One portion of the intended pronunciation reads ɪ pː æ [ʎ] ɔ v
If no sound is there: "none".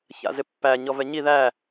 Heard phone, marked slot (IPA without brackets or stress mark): ɲ